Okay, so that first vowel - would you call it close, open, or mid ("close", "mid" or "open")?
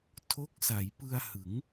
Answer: mid